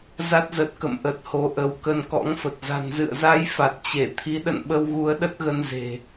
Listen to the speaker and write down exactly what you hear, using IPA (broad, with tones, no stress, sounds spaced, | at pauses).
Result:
z a˦˥ t̚ z ə˨˩ t̚ k ə̰˧˨ m ʔ ə˨˩ t̚ h o˨˦ ʔ ə˨˦ w k ə˧ n k ɔ̰˧˥ ŋ f ə˨˩ t̚ z a̤˨˩ n z ɨ̰˧˨ ə̯ z a˧ j f a˨˩ t̚ t͡ɕ e˧˩ t̪ʰ i˨˦ ɗ ə̰˧˨ n ɓ ə˧ w ɣ u˨˦ ə̯ ɗ ə˦˥ t̚ ɣ ə˧ n z e̤˨˩